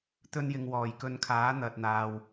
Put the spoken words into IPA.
t̪ɵ˧njɪ˨ŋ wɔː˨˩jkɵ˨˧nkʰaː˨˥ n̪ɐ˨t̚n̪aː˨w

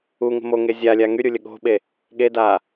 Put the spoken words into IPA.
uŋə̤ moŋe zʲalʲa ŋyɾʲulʲə ɠo̤ɓe | ɠeda

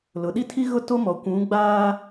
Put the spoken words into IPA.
lʊ˨ɗi˦tʰi˦ ɣʊ˦˨to˦mɔ˨ kʷũ˨˦ɡ͡baː˦

